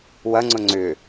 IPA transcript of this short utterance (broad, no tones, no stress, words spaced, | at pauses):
wɐŋ͡ǀʊ ŋ͡ǀʏ